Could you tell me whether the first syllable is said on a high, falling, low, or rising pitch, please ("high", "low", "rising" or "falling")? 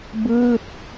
falling